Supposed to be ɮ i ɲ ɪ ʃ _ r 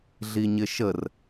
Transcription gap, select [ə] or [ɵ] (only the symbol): ə